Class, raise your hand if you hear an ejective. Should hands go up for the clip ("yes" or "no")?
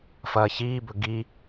no